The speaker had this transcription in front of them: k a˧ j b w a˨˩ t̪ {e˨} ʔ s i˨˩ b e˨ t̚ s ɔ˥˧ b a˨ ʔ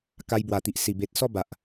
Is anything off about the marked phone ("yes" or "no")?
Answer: yes